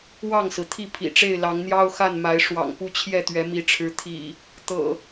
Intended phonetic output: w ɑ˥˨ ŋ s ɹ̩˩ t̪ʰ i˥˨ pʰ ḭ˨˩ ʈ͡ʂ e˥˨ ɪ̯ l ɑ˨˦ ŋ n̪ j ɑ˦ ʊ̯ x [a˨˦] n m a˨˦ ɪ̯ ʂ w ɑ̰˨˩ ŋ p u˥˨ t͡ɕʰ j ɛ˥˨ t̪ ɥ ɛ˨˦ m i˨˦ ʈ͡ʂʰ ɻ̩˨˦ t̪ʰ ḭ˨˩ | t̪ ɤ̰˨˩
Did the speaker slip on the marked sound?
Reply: yes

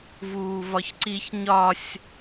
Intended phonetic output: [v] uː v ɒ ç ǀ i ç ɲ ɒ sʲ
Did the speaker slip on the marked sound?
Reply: no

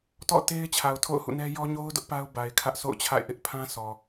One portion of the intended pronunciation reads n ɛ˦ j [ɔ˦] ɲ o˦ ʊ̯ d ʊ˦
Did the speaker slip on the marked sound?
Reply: no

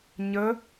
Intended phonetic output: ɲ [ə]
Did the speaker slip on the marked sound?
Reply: no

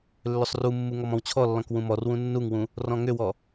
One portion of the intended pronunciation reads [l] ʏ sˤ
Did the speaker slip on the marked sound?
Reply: yes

